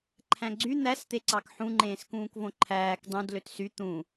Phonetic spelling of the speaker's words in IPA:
ǃʰ æ̃ ɡ͡ǀ y n̪ æ s t̪ e ǀ ɑ k ħ ũ ŋ͡ǃ ẽː s k ũː k v õ ǃʰ æː k dˤ ũ d l ø t s y t̪ ũ

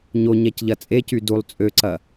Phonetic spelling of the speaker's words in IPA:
ɲ o ɲ ɛ c ʎ ɐ t͡sʼ e c y d u lˠ t͡sʼ ø ǀ ɐ

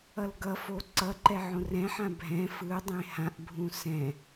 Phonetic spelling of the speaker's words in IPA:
ʌ l ɡ ʌ f o ǀ ʌ ǃ ɛ ʕ õ r ɛ̃ ħ ã bʱ ɛ̃ f ɯ dˤ ẽ h ã ʔ bʱ ũ s ɛ̃

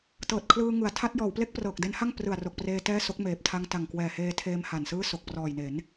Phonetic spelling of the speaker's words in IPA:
t ɤː˨˩ t̚ kʰ l ɯː˧ ŋ ɯ˩˦ a̯ tʰ a˦˥ t̚ j ɔː˩˦ w p l e˥˩ k̚ p r ɤː˨˩ k̚ d e˦˥ n h a˥˩ ŋ p r ɯ˨˩ a̯ r o˨˩ k̚ p r eː˧ t ɛː˥˩ s o˦˥ k̚ m eː˨˩ p̚ tʰ a˧ ŋ t a˨˩ ŋ k w ɛː˨˩ h eː˧ tʰ eː˧ m h a˨˩ n s ɯː˥˩ s o˨˩ k̚ p r ɔː˨˩ j n e˩˦ n

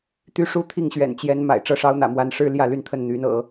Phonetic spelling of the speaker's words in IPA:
t̪ y˥ ʂ u˥ t̪ʰ i˥˩ ŋ ɕ ɥ ɛ̰˨˩ n t͡ɕ j ɛ˧˥ n m a̰˨˩ ɪ̯ ʈ͡ʂ ɤ˥˩ ʂ ɑ˥ ʊ̯ n̪ ä̰˨˩ m w a˧˥ n ʂ ɻ̩˥ l j ä˥˧ l y˥˧ n t̪ʰ ə˥˩ n n̪ y˧˥ n ɤ̰˨˩˦

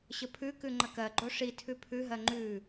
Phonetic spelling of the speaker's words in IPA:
ɕ ə pʰ ʉ k ʉ ŋ͡ǃ ə k ɜ ɡ͡ǃ o ʂ i tʰ ʉ pʰ ʉ ɦ ɜ ŋ͡ǃ ʉ

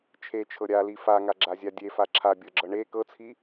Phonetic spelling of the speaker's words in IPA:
t͡ʃʰ e t͡ʃʰ ɤ ɾʲ a l i f a ŋ a ɡ͡ǁ a zʲ a dʲ e f a ǁʰ a bʲ ɤ ɡ͡ǁ ɤ ɳ e k ɤ t͡sʰ i

